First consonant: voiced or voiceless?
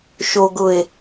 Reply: voiceless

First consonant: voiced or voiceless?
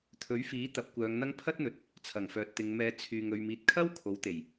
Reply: voiceless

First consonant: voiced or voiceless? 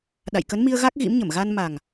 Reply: voiced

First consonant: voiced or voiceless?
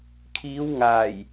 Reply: voiceless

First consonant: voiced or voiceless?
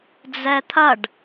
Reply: voiced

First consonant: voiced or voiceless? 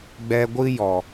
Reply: voiced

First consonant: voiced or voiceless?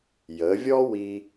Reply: voiced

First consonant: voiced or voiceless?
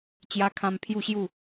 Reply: voiceless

